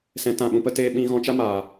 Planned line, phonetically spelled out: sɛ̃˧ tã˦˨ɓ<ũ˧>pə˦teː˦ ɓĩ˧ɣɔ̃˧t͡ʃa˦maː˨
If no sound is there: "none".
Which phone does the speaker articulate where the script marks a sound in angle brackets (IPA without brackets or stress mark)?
ũ˧